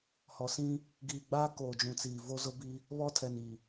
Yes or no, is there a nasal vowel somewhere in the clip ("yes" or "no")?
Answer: yes